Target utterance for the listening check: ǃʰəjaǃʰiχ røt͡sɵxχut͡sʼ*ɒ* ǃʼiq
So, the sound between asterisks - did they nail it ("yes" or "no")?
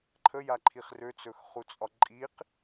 yes